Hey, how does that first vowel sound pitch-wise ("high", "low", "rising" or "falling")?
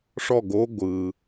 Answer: falling